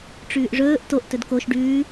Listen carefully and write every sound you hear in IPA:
ʈ͡ʂ ʉː ʔ ʐ ɵː ʔ t o ʔ t ɵ d k o ʃ ɖ ʉː

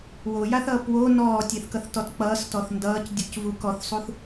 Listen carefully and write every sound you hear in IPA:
w o j a θ ʌː p w o n ɔː tʲ e θ k ʌ θ t ɔ t k͡p ʌː s t ɔ θ n d ʌː c dʲ u c v u k ɔ θ sˤ u θ

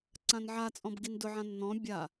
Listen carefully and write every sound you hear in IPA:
ǀ ã n ʕ a t͡sʼ ɔ̃ b ɡ i n d ʊ ʕ ã nː ɔ̃ bʲ a

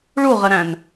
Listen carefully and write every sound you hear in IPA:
ɭ u ʁ ə ɾ æ̃ n

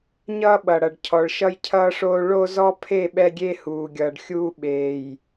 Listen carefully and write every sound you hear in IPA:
ɲ ʌː˦ ɓ ʌ˨ ɽ ʌ˨ ɖ cʰ ɔ˨ ɭ ʃ ʌ˦ j cʰ ʌː˦ ʂ oː˦ ɭ o˦ z ɔ˦ pʰ e˦˨ ɓ ɛ˦ ɡʲ e˦ h uː˨ ɡʲ ʌː˨ ɖ xʲ uː˦ ɓ eː˨ j

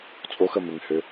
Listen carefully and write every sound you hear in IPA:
t͡sʼ o x ə m ɪ ŋ h ø

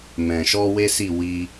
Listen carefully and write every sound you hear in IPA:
m ɛ̃˨ ʃ ɔ˧ w e˦ s i˦˨ w i˧

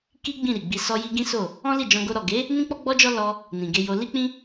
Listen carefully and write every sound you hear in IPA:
k i˦ ɡ͡b ĩ˦˨ ɾ i˨ ɡ͡b i˧ s ɔ˧ j i˧ ɡ ĩ˦ s o˦˨ | ɔ̃˦ l i˦˨ d͡ʒ ɔ̃˧ ɡ o˧ ɾ ɔ˨ ɡ e˨˦ | n ĩ˦ k͡p ɔ˦ ɡ͡b ɔ˦ d͡ʒ ɔ˦ l ɔ˧ | n ĩ˨ ɡ e˧ j o˧ l i˦ k͡p ĩ˦

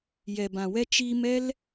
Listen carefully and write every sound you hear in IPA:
j ɛ˨ b ã˨ w ɛ˦ t͡ʃ iː˧ m ɛ˦ l

